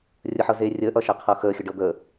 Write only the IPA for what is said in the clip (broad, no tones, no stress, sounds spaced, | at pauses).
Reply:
rʲ ə ħ ɤ z eː rʲ əː ʔ ʌ ʃ ɛ qʰ ɤ x əː xʲ ə ɖ ɤ d̪ əː